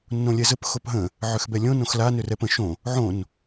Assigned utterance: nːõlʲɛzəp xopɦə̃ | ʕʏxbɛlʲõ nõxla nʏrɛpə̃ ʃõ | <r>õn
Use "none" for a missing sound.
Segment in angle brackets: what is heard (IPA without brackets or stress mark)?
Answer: ʕ